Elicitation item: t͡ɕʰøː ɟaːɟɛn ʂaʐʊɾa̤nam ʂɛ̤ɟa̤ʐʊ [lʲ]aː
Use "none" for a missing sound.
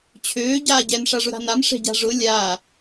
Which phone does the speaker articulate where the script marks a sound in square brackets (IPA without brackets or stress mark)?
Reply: lʲ